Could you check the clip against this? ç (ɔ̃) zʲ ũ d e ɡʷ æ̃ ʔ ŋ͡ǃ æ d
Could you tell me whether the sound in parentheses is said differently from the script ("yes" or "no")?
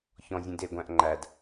no